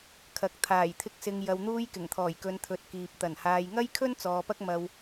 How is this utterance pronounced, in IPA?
kʰɐ˨k̚ t̪ʰaː˨˩jt̪ʰɪ˧k̚ sɪ˨ŋ jɐ˨wn̪uː˧jkɪ˨˩ŋt̪ʰɔː˨˩j kɵ˨˧nt̪ʰɵ˨˥t̚kiː˨p̚ t̪ɐ˨˩nhaː˨j ŋɐ˥jkʰɵ˥n t͡sɔː˨˧pɐ˥k̚ mɐ˧w

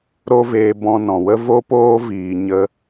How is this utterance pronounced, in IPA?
ɾo˦veː˧ bɔ̃˧nɔ̃˨wə˦ vo˦poː˦ viː˧ ɲə˧

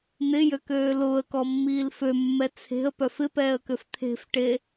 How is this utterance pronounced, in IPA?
n̪ɪjøkøː lʊːə̯kɔmːiːl fømːɛ t͡sʰe̤ə̯pœf ɪpɛːə̯køf t̪ʰe̤fʈe

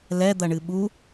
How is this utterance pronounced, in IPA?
lɛd̪ɐɳɨ ɓu

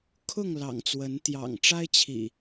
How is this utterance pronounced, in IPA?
kʰʊ˥˨ŋ lɑ̰˨˩ŋt͡swə˨˦n t̪jɑ̰˨˩ŋʈ͡ʂa˦ɪ̯t͡ɕʰḭ˨˩

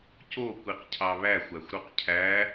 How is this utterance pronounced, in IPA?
co kʷiqcʰɑβæxʷ æxʷɾuqcʰæ

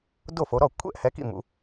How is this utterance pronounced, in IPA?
do˥˩fo˨˦ɾɔ˥˩ kʷʰɛ̰˥˧ʔhɛ˨˦kḭ˥˩ mṵ˨˦

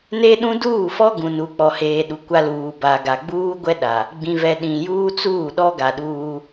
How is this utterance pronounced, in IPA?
ne˦ ɗũ˦ duː˦˨fɔ˦ɡũ˨ nu˨k͡pɔ˨heː˨ ɗu˨kʷa˦luː˨ ba˨ɡa˨ ɡ͡buː˦ɡʷɛ˦ ɗa˨ | ɡ͡bĩ˨vɛ˨ ɗĩ˨ juː˦t͡suː˦˨ɗɔ˦ ɡa˨ɗuː˦

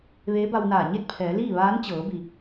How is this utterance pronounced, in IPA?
ʋeː˧˥ba˧wnaː˧˩ ɲe˥˨t̚pʰɛː˩˧liː˥˨ ʋaː˧˥nt͡ɕɤː˩˧bi˩

